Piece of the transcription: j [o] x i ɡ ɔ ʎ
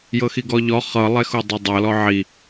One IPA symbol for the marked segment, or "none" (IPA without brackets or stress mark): ɤ